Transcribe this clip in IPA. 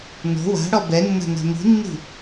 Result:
n o̤ w a̤ ɽ ɔ b ɛ nː a̤ n a̤ m i̤ nː i̤

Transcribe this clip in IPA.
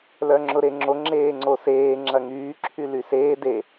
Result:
l œ ŋ͡ǁ ʊ ɾ e ŋ͡ǁ o ŋ͡ǁ eː ŋ͡ǀ o s eː ŋ͡ǁ ɐ ŋ yː ǁʰ y l y s eː d e

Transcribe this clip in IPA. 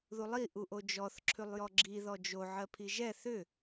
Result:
ð u lˠ i ʔ u ʔ o d͡ʒ ɔ θ ǁʰ ʉ lˠ j ɔ ɡ͡ǁ i ð ɔ d͡ʒ o ʕ ɜ pʰ i ʒ ɛ θ ʏ

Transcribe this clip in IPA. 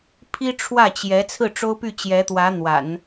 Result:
pʰ i˥ ʈ͡ʂʰ w ä˥˩ t͡ɕ j ɛ˧˥ t͡sʰ ɹ̩˥˩ ʈ͡ʂ o˥ ʊ̯ p y˥˩ t͡ɕ j ɛ˧˥ t̪ w ä˧˥ n̪ w a̰˨˩˦ n

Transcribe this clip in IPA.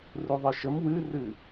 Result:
r u ðˤ ɨ ʃ ə m w ɨ r ɨ

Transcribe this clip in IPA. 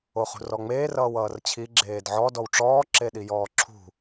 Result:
o χ ṳ r ɔ ŋ͡m eː r ʌː w ʌː r t͡ɕʰ i ɡ͡ǁ eː d ʕ ɔ d ɔ w ʈ͡ʂ ɔː ǁ e ɗ i j ɔː ǁʰ ṳ

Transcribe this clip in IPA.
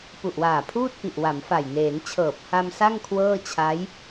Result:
p u˨˩ ʔ w aː˨˩ pʰ uː˥˩ t̚ p i˨˩ ʔ w a˩˦ m f a˨˩ j n eː˩˦ n t͡ɕʰ ɤː˨˩ p̚ h a˧ m s a˥˩ ŋ kʰ w ɤː˥˩ t͡ɕʰ a˦˥ j

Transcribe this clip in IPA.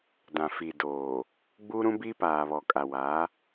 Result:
d ã˨ f iː˨ d oː˨ | ɡ͡b u˦ ɾ ũ˦ b i˦ p aː˨ β ɔ˨ kʼ a˨ w a˨˦

